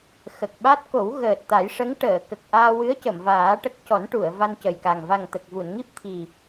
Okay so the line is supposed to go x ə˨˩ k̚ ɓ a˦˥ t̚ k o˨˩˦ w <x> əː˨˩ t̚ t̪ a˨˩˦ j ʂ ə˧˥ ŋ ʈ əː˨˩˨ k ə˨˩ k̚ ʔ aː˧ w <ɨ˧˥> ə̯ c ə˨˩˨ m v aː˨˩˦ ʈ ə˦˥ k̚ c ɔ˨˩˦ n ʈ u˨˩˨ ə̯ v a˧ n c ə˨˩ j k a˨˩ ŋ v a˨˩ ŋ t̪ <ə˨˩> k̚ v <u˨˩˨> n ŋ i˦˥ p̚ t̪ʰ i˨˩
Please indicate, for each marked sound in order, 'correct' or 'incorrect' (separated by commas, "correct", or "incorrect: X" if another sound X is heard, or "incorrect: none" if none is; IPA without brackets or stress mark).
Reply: incorrect: ɣ, correct, correct, correct